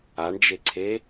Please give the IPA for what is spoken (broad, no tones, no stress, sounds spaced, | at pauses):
a ɳ d͡ʒ e ǀʰ e